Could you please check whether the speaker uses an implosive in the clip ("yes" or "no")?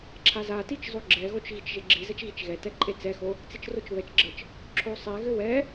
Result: no